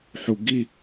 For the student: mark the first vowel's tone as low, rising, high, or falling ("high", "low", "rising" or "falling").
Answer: low